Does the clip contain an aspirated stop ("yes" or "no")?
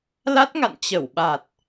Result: no